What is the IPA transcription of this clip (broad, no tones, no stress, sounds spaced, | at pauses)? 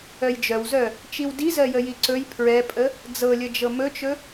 œ j d͡ʒ œ w z œ | t͡ʃ i w d i z ɜ j ə j i ǀ ɵ j pʰ ɹ ɛ pʼ ə | d͡z ɤ lʲ ə d͡ʒ ɤ m ɵ t͡ʃ ɵ